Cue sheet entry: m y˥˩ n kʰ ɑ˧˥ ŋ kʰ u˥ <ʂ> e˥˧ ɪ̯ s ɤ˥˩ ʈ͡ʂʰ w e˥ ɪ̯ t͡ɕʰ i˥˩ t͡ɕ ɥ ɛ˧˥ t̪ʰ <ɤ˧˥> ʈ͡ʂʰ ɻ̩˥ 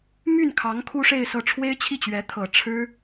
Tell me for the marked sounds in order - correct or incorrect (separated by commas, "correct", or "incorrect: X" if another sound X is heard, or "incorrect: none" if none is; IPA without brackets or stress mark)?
correct, incorrect: ɤ˨˩